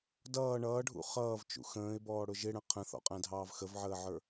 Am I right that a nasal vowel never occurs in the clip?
no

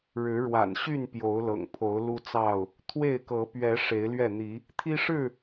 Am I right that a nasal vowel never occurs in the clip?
yes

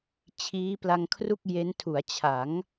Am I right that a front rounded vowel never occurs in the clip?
yes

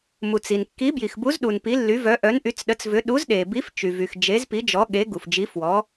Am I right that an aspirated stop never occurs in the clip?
yes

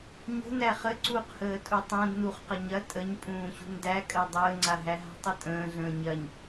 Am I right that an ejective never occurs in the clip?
no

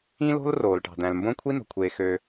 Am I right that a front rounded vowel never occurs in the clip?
no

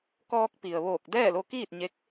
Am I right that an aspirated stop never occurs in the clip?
yes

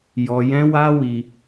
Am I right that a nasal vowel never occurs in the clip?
no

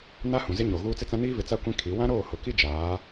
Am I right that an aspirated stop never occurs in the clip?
no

